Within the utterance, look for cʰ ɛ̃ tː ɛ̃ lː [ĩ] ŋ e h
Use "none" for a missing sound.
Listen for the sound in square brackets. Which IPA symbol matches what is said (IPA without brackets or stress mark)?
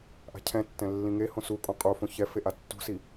ĩ